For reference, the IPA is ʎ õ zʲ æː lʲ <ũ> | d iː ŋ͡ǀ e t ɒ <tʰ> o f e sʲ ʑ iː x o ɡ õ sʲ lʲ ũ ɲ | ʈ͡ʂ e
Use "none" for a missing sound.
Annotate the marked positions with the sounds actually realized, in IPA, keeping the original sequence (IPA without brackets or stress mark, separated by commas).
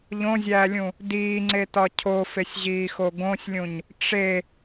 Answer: ũ, cʰ